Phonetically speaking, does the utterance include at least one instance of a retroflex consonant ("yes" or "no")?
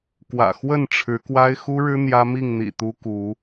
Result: yes